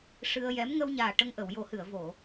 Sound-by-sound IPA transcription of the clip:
ʂ ɨ˧ ə̯ j ɛ˧˥ m ŋ ə˧ w ɲ aː˨˩ ʈ ə˧ ŋ ʔ ə˨˩˨ w j o˨˩˦ h ɨ˨˩˨ ə̯ v o˨˩˨

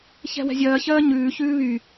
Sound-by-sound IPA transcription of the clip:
ç ɛ̤ w ɛ̤ zʲ ɜː ç ɜː ɲ ʉː ç ʉː β y

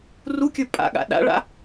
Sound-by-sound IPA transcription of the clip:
r u kʲ ə˞ pʼ a̰ ɠ a̰ ɗ a̰ ɭ a̰

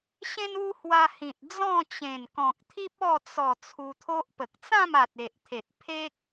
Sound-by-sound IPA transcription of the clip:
ɕ ẽ˦ n u˦ h w a˧ h ĩ˨ t̚ d͡z ɔ̃˥˧ t͡ɕ ẽ˨˩ n k ɔ̃˨ k̚ t̪ʰ i˦ p̚ ɔ˥˧ t͡s ɔ˨˩ t͡sʰ u˧ t̪ʰ o˦ ʔ p ə˨ k̚ t͡s ã˥˧ m a˨ t̚ e˨ ʔ t̪ʰ e˨ t̚ pʰ e˦ k̚

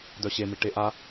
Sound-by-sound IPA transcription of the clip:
d œ ɕ e m i ʈ e ʔ a

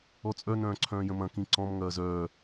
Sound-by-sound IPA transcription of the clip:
ɔ t͡sʼ œ n œ̃ː ǀʰ œ̃ː j ə̃ m ɐ̃ k ĩ ǀ ɔ̃ m ŋ ɐː z œː

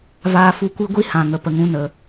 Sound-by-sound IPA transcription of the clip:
v aː˧ f u˧ kʷ i˦ ɡʷ i˦ h ã˨ ŋ ə˨ p ə˨ ŋ ũ˧ n ə˨

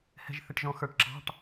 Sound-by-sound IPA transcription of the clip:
h ɛ̤˨ ʒ θ ɪ˨ ʈ ʒ ɔ̃˨ x ə˞˨ ʈ ǁ ɑ̤˧˥˧ ʈ

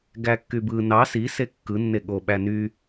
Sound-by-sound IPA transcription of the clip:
ɡ æ kː y b ɯ n ɑ s i s e kː ɯ nː e ɠ o ɓ æ n y

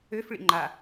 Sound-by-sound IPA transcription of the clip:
ø f ɭ ḭ ŋ͡ǃ a

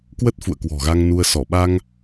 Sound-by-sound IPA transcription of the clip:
k w ə˦˥ t̚ f ṵ˧˨ ə̯ k w ɔ̤˨˩ ɣ a˧ ŋ n u˧ ə̯ s ɔ˧˩ ɓ a˧ ŋ

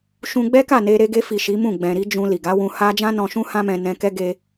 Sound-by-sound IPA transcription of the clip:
ʃ ũ˧ ɡ͡b ɛ˦ k a˦˨ n e˧ ɾ e˧ ɡ e˧ f i˨ ʃ i˨˦ m ũ˦˨ ɡ͡b ɛ̃˨ ɾ i˧ d͡ʒ ũ˧ l i˨ ɡ a˨˦ w ũ˧ h a˦ d͡ʒ ã˦ n ɔ̃˧ ʃ ũ˦ h ã˦ m ɛ̃˧ n ɛ̃˧ k ɛ˦ ɡ e˦

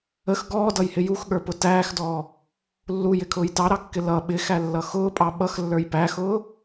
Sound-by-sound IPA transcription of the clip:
ə x ɡ ɔː d ʌ j h ɪ j u x ɠ ə˞ p ʊ t æː x d ɔː | lː u j ɪ kʰ ʊː j t ɑ ɾ ɑ kː ɪ l ʌ ɓ ɪ x æ lː ʌ x ʊː pʼ ɑ ɓ ʌ x lː ə˞ j p æ x ʊː

